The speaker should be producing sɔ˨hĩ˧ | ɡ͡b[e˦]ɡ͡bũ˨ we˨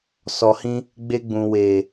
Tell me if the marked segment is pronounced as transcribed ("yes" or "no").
no